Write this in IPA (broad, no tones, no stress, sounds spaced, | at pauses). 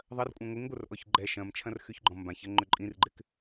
ðˤ ɐ r kʷʼ œ̃ ŋʷ ɪ ŋ ɡʷ ə r ʔ ɔ ç ɡ͡ǃ ɛ ʃ ɐ̃ m t͡ʃʰ ɐ̃ r x y ç ɡ͡ǃ ɔ̃ m b ã ç ɐ ŋ͡ǃ ʏ ǃʼ ĩ r ɡ͡ǃ ɪ k